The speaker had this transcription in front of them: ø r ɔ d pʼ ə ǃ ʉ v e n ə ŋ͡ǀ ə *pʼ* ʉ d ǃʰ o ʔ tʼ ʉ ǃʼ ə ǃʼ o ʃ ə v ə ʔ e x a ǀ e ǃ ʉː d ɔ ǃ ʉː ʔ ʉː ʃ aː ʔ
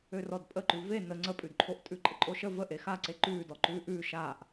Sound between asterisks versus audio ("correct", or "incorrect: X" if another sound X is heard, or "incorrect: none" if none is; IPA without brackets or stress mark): correct